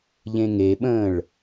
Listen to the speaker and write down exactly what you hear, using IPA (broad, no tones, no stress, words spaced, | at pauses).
ʎẽŋeɓə̃ːɭ